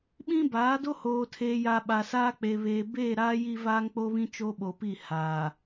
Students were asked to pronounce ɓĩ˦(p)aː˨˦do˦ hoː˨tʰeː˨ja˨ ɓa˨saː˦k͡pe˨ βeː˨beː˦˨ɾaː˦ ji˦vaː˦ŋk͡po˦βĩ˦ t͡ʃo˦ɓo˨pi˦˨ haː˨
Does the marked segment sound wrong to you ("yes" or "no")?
yes